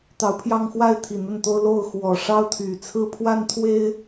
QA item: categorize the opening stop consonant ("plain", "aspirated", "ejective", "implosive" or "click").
plain